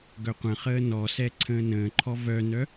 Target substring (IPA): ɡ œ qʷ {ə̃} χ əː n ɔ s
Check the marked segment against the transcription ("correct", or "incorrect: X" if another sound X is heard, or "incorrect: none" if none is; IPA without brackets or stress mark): correct